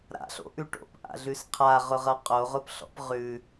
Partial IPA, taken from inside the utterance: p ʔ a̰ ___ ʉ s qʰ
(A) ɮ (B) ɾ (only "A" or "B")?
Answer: A